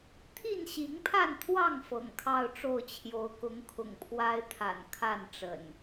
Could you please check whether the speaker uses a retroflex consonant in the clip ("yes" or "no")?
yes